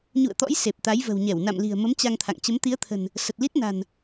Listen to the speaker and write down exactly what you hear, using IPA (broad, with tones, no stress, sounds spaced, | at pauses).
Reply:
ɲ ṵ˧˨ ə̯ t̪ ɔ̰˧˥ j s e˨˩ p̚ t̪ a˨˦ j v ə̤˨˩ w ɲ ɛ˧˩ w n a̰˧˨ m l i̤˨˩ ə̯ m ə˨˦ m t͡ɕ a˧ ŋ t̪ʰ a̰˧˨ ŋ t͡ɕ ə˨˦ m t̪ i˨˦ ə̯ t̪ʰ ə̤˨˩ n | s ə˨˩ t̚ l i˦˥ t̚ n a̤˨˩ n